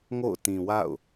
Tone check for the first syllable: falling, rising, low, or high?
falling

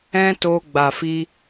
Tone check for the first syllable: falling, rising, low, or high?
high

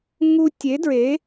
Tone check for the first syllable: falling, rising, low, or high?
high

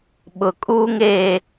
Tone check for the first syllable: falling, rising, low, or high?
low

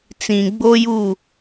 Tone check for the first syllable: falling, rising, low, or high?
low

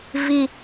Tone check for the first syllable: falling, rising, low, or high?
low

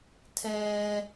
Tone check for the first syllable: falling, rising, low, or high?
high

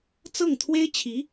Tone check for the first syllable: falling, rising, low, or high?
falling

